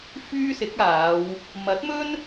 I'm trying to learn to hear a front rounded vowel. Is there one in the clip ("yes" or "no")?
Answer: yes